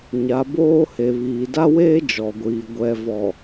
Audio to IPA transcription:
ɲ a˨˦ b oː˦ h e˨ β iː˨ d a˦ w eː˦ d͡ʒ ɔ˨ ɡʷ iː˨ ɡʷ ɛ˨ v ɔ˨

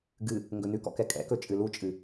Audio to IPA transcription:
ɡ ɨ | ŋ ɡ ɵ n ʉ k ɔ̰ k ɛ kʼ ɛ̰ k ɵ t͡ʃʼ ɨ l u t͡ʃʼ ɨ

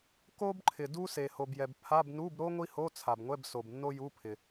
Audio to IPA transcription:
k o˥ b ǃʰ ɪ˩ d u˥ s e˩ h o˩ b j ɛ˩ b pʰ a˧˥˧ b n u˧˥˧ b ɾ o˥ ŋʷ i˥ h o˧˥˧ t͡sʰ a˩ b ŋʷ ɛ˧˥˧ b s o˩ b nː o˥ j u˧˥˧ pʰ ɪ˩

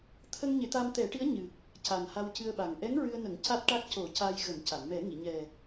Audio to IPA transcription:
t̪ʰ ə˧ ŋ ɲ e˨˩˦ t̪ a˧ m t̪ ɛ˨˩˦ ʈ i˧˥ ə̯ ɲ ɨ˨˩ k̚ | c a˨˩ n h a˧ w c ɨ˧ ə̯ ɓ a˨˩ ŋ ʔ ɛ˧˥ ŋ ɹ ɨ˧ ə̯ n ə˨˩˦ ŋ c a˦˥ t̚ ʈ a˦˥ k̚ c o˨˩˦ c a˧ j ɣ ə˨˩˦ m c a˨˩˨ n m ɛ˨˩˦ ŋ i˨˩˨ ɲ ɛ˨˩

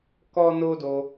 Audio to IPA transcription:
k ɔ˦ n o˦ d o˧

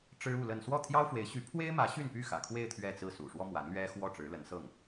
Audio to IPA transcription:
ʈ͡ʂ ɻ̩˥ u˥˧ l ə˥˧ n s w ɔ˥˩ t̪ʰ j ɑ˥ ʊ̯ f w e˧˥ ɪ̯ ɕ y˧˥ pʰ w e˥ ɪ̯ m ä˧˥ ɕ y˥˧ n p y˥˩ x ä̰˨˩ kʰ w e˥˧ ɪ̯ t̪ʰ ɥ ɛ˥˧ t͡s ɹ̩˥˩ s ṵ˨˩ ʂ w ɔ˥ m w a˧˥ n l ɥ ɛ˥ x w ɔ˥˩ ʈ͡ʂ ɻ̩˧˥ l ə˧˥ n s ɤ˥˩ ŋ

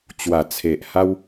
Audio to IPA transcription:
t͡ɕ w a˨˩ t͡sʰ e˨ ʔ h a˦ w

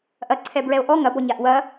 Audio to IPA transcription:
ʔ ɐ ǀʰ ɛ b ɹ ɛ o̯ ʔ ɔ ŋ ɐ b ɔ ɲ a ʔ w ɐ

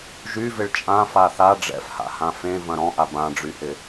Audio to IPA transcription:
ʒ y v ɪ ɭ t͡ʃʼ ã f a θ a ɖ͡ʐ ɛ̰ f h a̰ h ã f ẽ v ɐ̃ ɾ ɔ̃ ʔ a b ã ɖ͡ʐ y h ɪ

